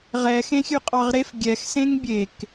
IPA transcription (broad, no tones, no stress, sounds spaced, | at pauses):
ʁ ɛ x ẽ xʲ ʉ qʼ ɑ ʁ ɾ e f ɡʲ ɛ x s ẽ ŋ bʲ e k